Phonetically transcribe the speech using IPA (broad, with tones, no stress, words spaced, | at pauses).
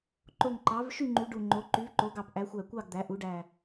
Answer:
ǃo˧˩ŋǃɑ˩˥v ʃy˥˨ŋ͡ǃy˩˥ ɖu˧˩ŋ͡ǃo˩˥ ǃy˩˥vǃo˩˥ɡɑ˧˩p ʔæ˩˥xʷæ˧˩kʷɑ˥˨ɡ d̪æ˩˥ʔu˩˥ɖæ˧˩